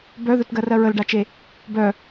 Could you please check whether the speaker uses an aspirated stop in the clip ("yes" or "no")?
no